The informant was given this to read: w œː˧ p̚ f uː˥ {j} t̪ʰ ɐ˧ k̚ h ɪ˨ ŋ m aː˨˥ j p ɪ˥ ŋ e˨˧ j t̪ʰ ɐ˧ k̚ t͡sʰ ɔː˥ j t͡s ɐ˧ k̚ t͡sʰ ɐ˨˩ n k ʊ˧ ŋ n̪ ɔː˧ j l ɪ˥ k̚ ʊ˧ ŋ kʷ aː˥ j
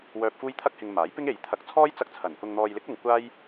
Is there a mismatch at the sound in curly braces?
no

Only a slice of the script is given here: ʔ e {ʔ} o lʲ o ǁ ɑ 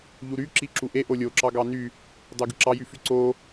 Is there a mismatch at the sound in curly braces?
no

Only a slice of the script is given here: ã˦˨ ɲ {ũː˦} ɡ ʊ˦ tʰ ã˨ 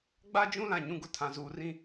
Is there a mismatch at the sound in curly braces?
yes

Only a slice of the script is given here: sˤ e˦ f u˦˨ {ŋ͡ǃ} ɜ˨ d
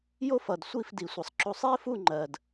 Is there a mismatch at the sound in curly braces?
no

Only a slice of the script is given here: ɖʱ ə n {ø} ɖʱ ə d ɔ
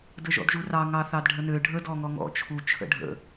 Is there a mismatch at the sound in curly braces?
no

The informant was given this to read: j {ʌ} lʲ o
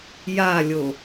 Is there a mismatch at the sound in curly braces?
yes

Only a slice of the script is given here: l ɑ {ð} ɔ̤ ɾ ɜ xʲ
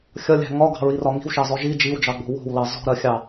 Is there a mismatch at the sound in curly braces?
yes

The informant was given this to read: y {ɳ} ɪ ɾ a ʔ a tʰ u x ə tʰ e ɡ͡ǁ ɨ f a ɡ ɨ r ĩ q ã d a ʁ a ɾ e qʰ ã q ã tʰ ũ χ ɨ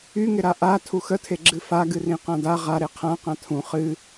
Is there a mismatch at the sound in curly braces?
yes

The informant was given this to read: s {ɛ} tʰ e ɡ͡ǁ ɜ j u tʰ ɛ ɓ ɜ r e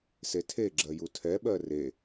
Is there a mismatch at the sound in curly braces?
yes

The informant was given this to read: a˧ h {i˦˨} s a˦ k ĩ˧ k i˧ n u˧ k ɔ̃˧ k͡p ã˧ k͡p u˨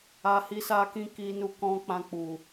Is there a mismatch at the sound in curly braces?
yes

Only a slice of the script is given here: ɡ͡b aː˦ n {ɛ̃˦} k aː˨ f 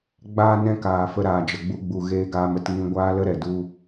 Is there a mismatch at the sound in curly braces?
no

